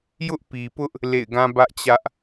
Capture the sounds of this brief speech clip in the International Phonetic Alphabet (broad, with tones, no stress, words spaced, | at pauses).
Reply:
jʊ˦ʔpi˨pʊ˦ʔ | lḛ˦˨ɪ̯ɡã˦bä˦ʔt͡ɕä˦ʔ